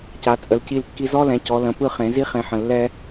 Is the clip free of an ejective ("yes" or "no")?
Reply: no